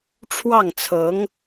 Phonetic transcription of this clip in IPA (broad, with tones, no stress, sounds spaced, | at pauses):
ʈ͡ʂʰ w ɑ˥˩ ŋ t͡sʰ ɤ˧˥ ŋ